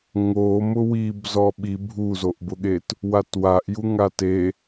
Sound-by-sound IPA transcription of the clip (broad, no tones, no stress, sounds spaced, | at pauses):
ŋ o m ʊ w i b z ɔ ɓ i bʱ u z o ʔ b ʊ ɠ e t | w a t w a ʔ j u ŋ a t e